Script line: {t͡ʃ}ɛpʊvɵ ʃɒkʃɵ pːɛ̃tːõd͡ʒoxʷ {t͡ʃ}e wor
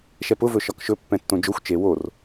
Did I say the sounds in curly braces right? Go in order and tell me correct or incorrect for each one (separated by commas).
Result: incorrect, correct